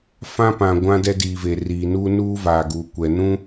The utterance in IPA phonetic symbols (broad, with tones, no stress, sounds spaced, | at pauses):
f ã˦ p ã˨ ɡʷ ã˦ d ɛ˦ d iː˨ v e˨ r iː˨ n uː˦ n uː˦ v aː˨ ɡ uː˨ kʷ ɛ˨ n ũ˦